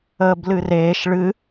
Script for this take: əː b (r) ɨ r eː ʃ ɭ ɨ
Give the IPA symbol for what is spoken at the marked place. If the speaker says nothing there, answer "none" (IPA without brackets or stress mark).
l